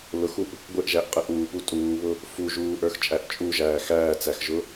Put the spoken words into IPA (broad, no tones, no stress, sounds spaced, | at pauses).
l ʊ x u ʔ | ɡʷ ɪ ʔ ʒ æ ʔ qʼ ə ʔ uː p u tʼ uː β ʊ | f u ʒ uː ʔ ə˞ x t͡ʃʼ æ ʔ t͡ʃʼ u ʒ æː x æː t͡s æ x ʒ ʊ